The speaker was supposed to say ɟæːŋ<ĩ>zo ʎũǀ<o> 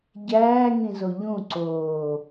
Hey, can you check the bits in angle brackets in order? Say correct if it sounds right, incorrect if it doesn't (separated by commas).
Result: correct, incorrect